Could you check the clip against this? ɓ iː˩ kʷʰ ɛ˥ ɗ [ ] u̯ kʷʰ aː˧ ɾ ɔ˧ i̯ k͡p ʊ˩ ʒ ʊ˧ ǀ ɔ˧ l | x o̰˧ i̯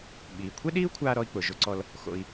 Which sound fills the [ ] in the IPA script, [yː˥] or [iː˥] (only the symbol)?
iː˥